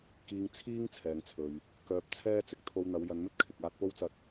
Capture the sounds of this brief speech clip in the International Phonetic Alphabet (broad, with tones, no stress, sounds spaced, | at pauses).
k iː˧ ŋ t͡sʰ iː˥ ŋ t͡sʰ ɛː˨ ŋ t͡sʰ ɵ˨ ɥ | k œː˧ p̚ t͡sʰ ɛː˥ t͡s ɪ˨˥ k̚ t̪ʰ o˧ w n̪ ɐ˨˧ w j ɐ˨˧ n m ɵ˥ t̚ kʰ ɪ˨ k̚ aː˧ t̚ p o˥ w t͡s ɐ˧ t̚